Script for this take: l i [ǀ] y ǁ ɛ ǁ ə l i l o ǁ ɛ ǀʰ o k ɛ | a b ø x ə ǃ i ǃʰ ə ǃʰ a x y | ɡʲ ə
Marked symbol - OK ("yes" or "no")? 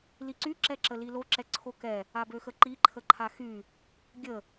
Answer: yes